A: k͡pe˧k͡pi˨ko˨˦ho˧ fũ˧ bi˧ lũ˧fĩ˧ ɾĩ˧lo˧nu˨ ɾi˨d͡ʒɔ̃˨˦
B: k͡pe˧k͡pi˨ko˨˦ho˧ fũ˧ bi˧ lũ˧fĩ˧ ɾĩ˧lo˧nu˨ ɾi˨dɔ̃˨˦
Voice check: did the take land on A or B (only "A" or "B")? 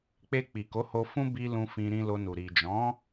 A